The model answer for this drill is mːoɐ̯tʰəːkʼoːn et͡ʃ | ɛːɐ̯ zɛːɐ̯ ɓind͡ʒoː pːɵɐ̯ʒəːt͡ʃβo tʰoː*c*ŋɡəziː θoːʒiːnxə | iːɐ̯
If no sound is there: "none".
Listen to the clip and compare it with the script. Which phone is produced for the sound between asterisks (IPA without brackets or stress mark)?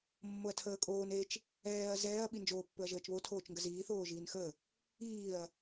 t͡ʃ